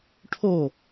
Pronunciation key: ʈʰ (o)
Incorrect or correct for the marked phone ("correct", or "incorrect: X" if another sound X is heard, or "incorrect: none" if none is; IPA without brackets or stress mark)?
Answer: correct